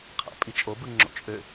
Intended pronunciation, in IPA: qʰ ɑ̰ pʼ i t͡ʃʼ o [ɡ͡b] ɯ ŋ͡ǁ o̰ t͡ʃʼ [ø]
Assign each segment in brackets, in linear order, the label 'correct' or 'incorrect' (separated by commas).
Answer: incorrect, correct